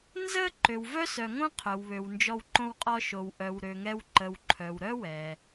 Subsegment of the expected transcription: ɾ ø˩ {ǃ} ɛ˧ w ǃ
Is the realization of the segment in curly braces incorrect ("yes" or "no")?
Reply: yes